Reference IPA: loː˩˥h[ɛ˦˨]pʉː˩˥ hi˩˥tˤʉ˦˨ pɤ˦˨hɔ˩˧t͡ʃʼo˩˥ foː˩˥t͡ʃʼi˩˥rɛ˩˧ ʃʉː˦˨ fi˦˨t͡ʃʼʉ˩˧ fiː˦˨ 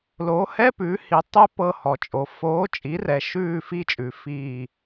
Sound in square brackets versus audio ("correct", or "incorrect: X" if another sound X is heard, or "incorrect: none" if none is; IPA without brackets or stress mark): incorrect: ɛ˧˥˧